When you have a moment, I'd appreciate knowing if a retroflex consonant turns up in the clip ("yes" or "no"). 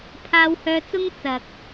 no